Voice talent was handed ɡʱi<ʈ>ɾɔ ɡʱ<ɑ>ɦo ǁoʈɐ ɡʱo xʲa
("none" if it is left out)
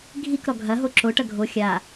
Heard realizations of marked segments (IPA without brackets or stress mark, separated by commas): k, ɐ